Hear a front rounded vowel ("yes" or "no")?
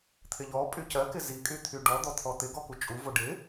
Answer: yes